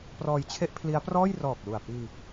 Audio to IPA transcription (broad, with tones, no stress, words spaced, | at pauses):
prɔː˧jt͡ɕʰe˥˩ʔpʰli˦˥a̯prɔː˥˩j rɔː˨˩k̚lu˨˩a̯ piː˧